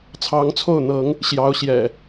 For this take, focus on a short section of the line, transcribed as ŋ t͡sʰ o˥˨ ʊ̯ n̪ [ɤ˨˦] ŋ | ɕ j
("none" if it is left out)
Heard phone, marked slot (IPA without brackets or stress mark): ɤ˨˦